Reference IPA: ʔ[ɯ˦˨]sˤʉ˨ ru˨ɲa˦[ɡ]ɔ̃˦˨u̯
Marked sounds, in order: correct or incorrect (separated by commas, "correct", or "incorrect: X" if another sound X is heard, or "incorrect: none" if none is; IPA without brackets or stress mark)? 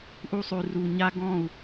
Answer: incorrect: u˦˨, correct